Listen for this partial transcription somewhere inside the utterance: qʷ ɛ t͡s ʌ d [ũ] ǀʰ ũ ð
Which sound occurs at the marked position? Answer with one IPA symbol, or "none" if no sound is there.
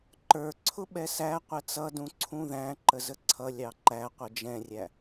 ũ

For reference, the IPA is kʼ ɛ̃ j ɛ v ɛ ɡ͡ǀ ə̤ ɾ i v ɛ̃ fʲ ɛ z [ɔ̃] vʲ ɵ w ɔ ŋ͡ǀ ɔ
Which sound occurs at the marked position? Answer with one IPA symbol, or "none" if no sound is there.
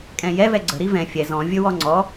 ɔ̃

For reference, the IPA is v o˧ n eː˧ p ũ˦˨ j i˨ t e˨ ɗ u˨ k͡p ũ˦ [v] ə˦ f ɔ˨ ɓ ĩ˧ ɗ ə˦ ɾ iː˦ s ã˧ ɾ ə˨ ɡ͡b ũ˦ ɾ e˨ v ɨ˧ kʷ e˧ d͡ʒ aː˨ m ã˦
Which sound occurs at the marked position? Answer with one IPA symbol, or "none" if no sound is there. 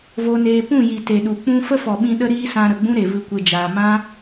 f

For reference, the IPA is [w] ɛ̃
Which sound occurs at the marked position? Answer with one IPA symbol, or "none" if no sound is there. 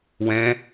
w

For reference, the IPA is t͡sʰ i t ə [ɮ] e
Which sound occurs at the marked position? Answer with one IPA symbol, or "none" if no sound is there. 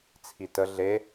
ɮ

